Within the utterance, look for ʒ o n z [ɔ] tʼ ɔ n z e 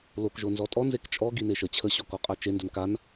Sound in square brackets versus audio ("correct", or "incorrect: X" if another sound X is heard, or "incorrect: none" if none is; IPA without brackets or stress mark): correct